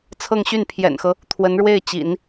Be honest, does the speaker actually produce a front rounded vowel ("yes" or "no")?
yes